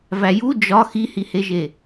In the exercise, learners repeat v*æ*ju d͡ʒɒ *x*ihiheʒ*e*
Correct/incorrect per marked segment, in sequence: correct, correct, correct

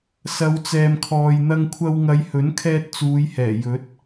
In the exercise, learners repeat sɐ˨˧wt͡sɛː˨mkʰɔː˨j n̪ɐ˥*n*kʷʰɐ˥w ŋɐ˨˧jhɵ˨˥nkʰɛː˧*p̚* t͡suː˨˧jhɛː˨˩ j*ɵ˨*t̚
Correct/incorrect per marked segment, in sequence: incorrect, incorrect, incorrect

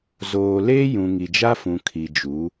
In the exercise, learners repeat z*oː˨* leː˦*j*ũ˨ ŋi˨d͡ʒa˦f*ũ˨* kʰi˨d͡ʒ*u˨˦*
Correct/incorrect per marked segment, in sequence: correct, correct, correct, correct

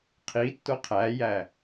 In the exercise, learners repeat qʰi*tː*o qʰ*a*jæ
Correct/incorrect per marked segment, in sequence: correct, incorrect

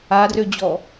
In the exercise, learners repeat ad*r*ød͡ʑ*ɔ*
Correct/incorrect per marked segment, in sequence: correct, correct

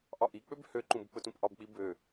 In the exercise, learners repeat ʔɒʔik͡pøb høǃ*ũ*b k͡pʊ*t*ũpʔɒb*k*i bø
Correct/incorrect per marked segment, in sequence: correct, correct, incorrect

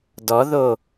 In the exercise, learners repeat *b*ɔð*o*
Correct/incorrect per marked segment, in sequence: incorrect, correct

